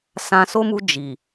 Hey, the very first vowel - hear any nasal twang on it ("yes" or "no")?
yes